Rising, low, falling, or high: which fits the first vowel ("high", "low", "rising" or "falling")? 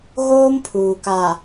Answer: high